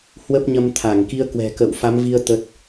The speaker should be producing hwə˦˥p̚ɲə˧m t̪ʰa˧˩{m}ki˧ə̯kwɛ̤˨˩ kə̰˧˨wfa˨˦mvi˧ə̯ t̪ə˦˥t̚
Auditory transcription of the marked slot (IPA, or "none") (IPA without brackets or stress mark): ŋ